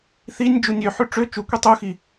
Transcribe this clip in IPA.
θ i nʲ d͡ʒ u nʲ ø ħ ʉ ʈ͡ʂ ø t͡ʃ u kʷ i tˤ u x i

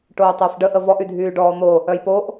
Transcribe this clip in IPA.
ʈ oː tˤ əː f ɖ ə ʔ ə v ɔ ʔ y dʱ yː ɖ ɔː n̪ o | œ j p o ʔ

